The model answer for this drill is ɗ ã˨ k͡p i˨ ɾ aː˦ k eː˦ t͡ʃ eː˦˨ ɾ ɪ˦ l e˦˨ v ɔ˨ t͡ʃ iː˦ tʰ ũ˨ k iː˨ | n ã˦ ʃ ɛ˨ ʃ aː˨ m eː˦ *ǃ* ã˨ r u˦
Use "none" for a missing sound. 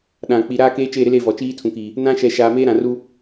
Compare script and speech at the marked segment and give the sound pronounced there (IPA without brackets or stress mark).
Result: ɾ